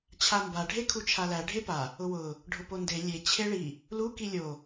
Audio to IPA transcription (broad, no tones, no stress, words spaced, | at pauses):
t͡ɕʰamba ɖʱekʰut͡ʃʰalæ ɖʱepa | ʊwʊ | ɖʱʊponde lʲe t͡ɕʰeɭi | lu kilʲo